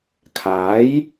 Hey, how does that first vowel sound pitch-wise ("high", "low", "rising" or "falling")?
rising